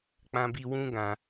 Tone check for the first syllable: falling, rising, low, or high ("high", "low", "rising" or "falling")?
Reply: high